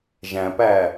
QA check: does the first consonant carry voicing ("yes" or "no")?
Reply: yes